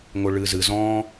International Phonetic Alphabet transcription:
ŋoɭɨːzɨ zɔ̃ː

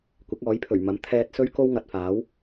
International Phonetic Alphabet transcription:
kʷɪ˨˥k̚ɔː˨˥jpʰɵ˨˩ɥ mɐ˨˥mt̪ʰɛː˧t̚sɵ˥ɥ ko˥wŋɐ˨t̚faː˨˥w

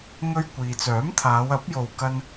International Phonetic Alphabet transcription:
ŋɵ˧ɥ kʷiː˨t͡sœː˨˥mt̪ʰaː˨˧w ɐ˨˥p̚jo˨w kɐ˧n

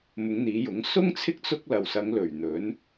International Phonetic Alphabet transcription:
mʊ˨˧ŋn̪iː˨˧jʊ˨˥ŋ sʊ˥ŋt͡sʰɪ˥k̚ t͡sʊ˥k̚ lɐ˨wsɐ˨˧ŋlɵ˨˩ɥn̪ɵ˨˥n

